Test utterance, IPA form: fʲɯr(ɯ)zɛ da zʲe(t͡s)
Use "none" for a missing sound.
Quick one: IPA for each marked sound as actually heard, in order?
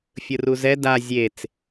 u, t͡s

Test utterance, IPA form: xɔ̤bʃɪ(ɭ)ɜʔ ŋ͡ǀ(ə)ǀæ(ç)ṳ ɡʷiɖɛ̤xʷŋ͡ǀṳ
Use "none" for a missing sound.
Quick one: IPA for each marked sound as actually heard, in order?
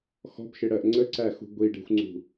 ɽ, ə, x

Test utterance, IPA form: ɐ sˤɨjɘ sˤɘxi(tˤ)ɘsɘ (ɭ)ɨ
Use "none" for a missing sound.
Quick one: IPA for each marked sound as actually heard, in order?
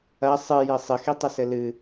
tˤ, l

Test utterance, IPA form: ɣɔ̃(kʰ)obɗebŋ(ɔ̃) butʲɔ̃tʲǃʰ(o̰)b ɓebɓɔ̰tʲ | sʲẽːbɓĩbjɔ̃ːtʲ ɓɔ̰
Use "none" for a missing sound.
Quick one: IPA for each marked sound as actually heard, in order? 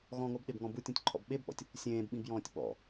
ŋ, ɔ̃, ɔ̰

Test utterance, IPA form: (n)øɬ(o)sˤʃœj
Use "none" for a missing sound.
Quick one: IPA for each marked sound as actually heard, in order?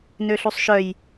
n, u

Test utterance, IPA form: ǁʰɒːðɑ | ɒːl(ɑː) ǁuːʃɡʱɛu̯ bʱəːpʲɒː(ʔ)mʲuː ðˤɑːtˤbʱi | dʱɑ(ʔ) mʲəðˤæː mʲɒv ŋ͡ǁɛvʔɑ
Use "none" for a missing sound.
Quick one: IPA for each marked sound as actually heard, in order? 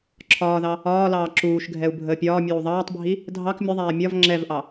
ɑː, none, k

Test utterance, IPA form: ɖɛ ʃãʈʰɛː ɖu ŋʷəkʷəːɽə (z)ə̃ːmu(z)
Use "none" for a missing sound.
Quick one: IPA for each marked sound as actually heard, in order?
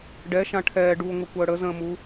z, none

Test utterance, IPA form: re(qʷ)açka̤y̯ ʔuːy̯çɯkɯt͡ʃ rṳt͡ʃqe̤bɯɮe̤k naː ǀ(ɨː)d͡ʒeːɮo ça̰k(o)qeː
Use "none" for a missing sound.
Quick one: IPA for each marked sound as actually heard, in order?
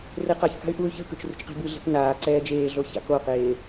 q, ɛː, o

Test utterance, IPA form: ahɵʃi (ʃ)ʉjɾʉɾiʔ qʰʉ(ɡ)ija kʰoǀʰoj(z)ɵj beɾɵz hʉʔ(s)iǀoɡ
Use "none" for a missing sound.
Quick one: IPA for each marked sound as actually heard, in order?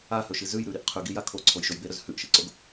z, ɡ, ʃ, ʃ

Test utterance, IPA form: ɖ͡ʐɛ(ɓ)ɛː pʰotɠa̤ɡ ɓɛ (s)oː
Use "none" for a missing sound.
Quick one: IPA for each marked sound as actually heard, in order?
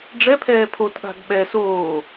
pʰ, s

